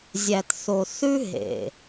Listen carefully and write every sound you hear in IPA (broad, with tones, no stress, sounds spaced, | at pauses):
zʲ æ˨ t θ o˨ θ ʉ˦ ɦ ḛ˨